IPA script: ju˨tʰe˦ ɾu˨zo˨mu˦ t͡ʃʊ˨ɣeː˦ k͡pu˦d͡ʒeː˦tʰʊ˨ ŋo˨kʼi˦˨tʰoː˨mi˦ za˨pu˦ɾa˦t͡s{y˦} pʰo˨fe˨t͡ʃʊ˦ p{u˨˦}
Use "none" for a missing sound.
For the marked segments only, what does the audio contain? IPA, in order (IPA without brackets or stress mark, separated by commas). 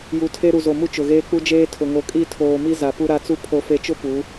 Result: u˦, u˨˦